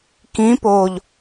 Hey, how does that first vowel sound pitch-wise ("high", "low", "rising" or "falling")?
rising